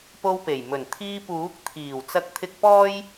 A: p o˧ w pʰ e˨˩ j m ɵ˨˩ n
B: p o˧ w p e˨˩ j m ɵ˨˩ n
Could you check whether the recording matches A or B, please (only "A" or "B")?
B